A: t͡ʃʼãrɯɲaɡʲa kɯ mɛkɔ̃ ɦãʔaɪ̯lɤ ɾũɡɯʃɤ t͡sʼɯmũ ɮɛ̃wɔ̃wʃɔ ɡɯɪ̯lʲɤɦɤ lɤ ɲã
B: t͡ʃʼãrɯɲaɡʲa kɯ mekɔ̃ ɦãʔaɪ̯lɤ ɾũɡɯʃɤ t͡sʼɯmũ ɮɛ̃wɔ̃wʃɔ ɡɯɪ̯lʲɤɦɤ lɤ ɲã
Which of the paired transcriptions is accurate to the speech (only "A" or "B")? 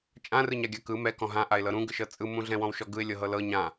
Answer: A